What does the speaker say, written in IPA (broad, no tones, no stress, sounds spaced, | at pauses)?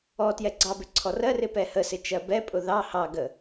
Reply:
ɔ t j ɛ ɡ͡ǀ ɑ b ɪ ǀʰ ɔ r ɜ r ɪ p ɛ h ə s ɪ t͡ʃ ɜ b ɛ pʼ ʊ ð ɑ h ɑ ɡ ə